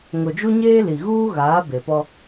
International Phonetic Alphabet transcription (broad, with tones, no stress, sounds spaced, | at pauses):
ŋ ʊ˨ d͡ʒ u˦ ɲ eː˦ l i˨ ɣ uː˦ ɣ aː˨˦ b e˨ p ɔ˦